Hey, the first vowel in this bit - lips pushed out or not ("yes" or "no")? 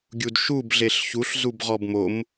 yes